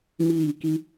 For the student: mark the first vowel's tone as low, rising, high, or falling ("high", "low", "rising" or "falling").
falling